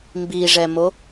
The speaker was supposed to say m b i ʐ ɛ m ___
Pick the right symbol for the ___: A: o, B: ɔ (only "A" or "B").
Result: A